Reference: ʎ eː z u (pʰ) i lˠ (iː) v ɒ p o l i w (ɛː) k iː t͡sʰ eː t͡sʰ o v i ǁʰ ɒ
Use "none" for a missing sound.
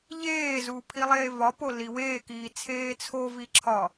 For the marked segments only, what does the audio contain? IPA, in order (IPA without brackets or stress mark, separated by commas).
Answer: pʰ, eː, eː